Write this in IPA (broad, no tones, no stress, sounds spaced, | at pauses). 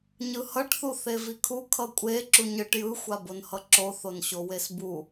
ɲ ɯ h ʌ ʈ θ u θ e v i kʰ u kʰ ʌ kʷʼ e ǁ u ɲ ɯ ʈ j ɯ xʷ a b o n h ʌ ǁ o θ o n ɕ o w e s b u